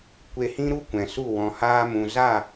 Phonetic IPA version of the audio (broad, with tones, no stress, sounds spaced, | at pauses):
kʷ e˧ h ĩ˦ ɾ u˦ kʷ ɛ̃˨ s u˦˨ w ɔ̃˨ h aː˧ m ũ˨ z a˦˨